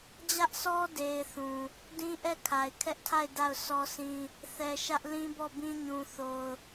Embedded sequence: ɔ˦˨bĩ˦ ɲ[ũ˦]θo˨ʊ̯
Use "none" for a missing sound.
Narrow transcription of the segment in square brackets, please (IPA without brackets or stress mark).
ũ˨